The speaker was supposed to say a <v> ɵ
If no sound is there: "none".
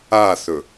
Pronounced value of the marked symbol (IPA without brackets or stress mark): θ